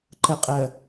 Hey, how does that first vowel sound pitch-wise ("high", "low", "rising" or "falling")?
low